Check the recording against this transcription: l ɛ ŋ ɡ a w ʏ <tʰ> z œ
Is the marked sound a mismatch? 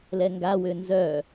yes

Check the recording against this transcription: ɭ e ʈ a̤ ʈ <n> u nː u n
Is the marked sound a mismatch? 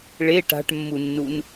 yes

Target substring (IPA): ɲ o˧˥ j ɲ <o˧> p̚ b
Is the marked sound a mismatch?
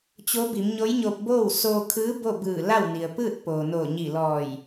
no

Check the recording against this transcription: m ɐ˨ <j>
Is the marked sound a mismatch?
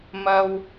yes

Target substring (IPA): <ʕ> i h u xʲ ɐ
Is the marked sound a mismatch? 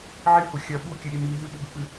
no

